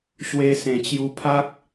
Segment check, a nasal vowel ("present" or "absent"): present